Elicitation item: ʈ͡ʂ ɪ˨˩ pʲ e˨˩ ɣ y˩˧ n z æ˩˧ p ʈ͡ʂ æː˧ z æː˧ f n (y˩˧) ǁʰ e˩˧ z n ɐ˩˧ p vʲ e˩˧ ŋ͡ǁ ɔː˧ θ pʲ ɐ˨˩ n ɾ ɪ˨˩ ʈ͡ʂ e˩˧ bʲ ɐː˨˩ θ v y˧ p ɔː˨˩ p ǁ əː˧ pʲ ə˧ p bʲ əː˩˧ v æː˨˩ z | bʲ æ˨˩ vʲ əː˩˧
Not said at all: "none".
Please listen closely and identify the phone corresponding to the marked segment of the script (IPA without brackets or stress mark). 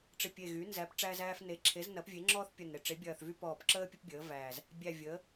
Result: e˩˧